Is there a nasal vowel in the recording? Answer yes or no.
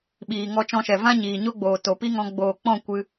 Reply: yes